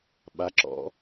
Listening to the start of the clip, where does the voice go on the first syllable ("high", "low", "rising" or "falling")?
rising